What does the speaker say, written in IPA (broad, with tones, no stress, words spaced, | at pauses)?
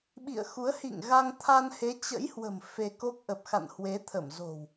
ɓḭ˧˨ə̯xu˨˦ə̯ hḭ˧˨ŋɣa˧ŋ t̪ʰa˧nhe˨˦t͡ɕə̰˧˥jhwə̤˨˩m fe˧ko˦˥k̚ ʔə˨˩p̚xa̰˧˨nhwe˨˦t̪ʰə˧˩m zo̤˨˩w